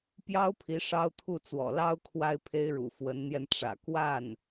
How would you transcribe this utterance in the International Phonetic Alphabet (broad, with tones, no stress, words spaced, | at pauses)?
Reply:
pjɑ˥ʊ̯pʰi˧˥ ʂɑ˥ʊ̯t̪ʰu˥˩t͡swɔ̰˨˩ lɑ˥ʊ̯ kʰwa˥ɪ̯pʰe˥ɪ̯ɻṵ˨˩ fwə˧˥nn̪jɛ˧nʈ͡ʂä̰˨˩ kwa˥˩n